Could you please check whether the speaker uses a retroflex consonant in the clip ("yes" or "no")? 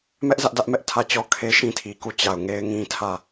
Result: no